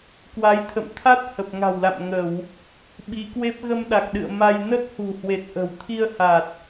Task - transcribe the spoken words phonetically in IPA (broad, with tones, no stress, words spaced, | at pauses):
kwa˨˦jt̪ʰə̰˧˨m t̪ʰa˦˥t̚ hə˨˩p̚ŋa̤˨˩wla̰˧˨m ŋə˧˩˨w | ɓi˨˦kwe˦˥p̚ ɣə˧mɗa˨˩k̚ɗɨ̰˧˨ə̯ ma˧j nə˦˥t̚hṳ˨˩hwe˨˩t̚ ʔə̤˨˩wt̪ʰi˧ə̯ha˨˩t̚